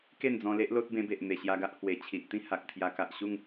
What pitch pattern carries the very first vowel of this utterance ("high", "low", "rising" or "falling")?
falling